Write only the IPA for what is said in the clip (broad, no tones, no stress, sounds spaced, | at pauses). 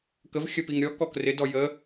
k ə v xʲ ə p i ŋ ɾʲ ɔ k ɔ k r ɪ d ɔ j ə